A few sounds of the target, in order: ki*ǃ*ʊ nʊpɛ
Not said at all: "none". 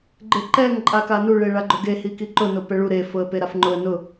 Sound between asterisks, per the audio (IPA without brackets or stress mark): ǃ